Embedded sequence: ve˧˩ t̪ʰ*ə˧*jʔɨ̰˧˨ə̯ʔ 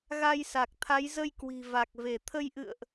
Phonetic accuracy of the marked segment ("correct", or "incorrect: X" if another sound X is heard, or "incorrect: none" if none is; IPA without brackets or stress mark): correct